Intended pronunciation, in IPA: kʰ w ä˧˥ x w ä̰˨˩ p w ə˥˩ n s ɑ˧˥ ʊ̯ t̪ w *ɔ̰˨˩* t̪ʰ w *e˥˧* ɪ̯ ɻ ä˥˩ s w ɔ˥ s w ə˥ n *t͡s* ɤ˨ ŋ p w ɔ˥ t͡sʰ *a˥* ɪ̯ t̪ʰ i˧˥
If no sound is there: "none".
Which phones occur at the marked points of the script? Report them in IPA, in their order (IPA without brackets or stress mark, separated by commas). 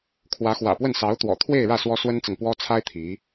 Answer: ɔ̰˨˩, e˥˧, t͡s, a˥